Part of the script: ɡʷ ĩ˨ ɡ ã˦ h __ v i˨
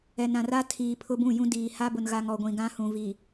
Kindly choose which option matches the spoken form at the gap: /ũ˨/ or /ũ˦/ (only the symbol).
ũ˨